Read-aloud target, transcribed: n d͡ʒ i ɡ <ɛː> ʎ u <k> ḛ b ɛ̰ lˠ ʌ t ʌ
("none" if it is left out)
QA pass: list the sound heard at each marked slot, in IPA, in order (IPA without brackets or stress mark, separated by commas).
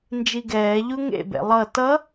ɛː, ŋ